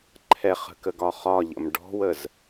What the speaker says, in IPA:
ǃʰɛχə̤kəɡɒ χɒʎə̰m ɖɔ̤wəz

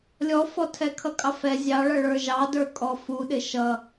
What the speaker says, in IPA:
lʲɔfɔ tʰɛkʰʌkʼɑfɛ zʲɑɭʌ ɭə˞ʒɑdə˞kʼɔ fuɗɪ ʃʌ

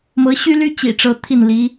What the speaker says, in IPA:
mɤ˧˥ɕy˥ly˥ t͡ɕḭ˨˩ ʈ͡ʂɤ˥ t̪ʰi˥˩nli˧˥

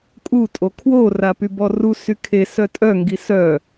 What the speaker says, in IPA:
kʼu tʼokʰwo rapybɔru sykʰes œtʼœ ŋɡisœ

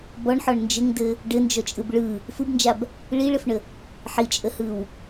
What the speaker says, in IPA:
bɔɳħɔɳ nd͡ʒɘŋdɘ | ɖɘnd͡ʒɔt͡ʃʼɯb ɭɯ | fɯbnd͡ʒab | ɭiɭɘfɳə | ħit͡ʃʼəhɯw

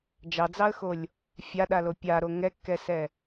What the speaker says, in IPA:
d͡ʒɑd͡zɑə̯xolʲ | fʲaɗalo pʲaɾo ŋɛkːɛsɛ

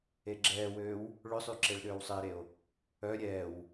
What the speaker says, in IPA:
eɡ͡ǁɛːwøːw | ɭʏsˤy ǁeɭɗøːwsˤɪːɾeo̯ | œ ɾʲɛːw

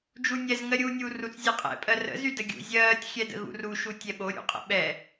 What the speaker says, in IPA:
d͡ʒunʲɛz ŋɜɾʲuːnʲuːrut͡s zʲɛqʼɛ̰ pʼɜrə̰ zydəɡʲṵ zʲɜːtʲ xʲɛdə̰ɣṵru ʃutʲɛɓo ɾʲṵqʼə̰ɓɛ

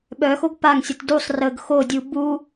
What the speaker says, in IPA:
ɓœxoɡ paŋsʲət dusˤ rəɡ xodʲu bu

